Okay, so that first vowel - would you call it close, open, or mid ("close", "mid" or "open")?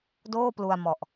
mid